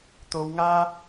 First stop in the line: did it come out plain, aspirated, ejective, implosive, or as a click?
plain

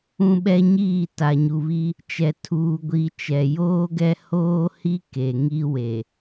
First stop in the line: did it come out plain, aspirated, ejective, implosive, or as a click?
implosive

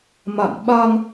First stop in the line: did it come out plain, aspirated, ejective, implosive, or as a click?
implosive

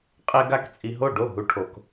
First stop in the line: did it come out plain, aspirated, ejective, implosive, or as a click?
ejective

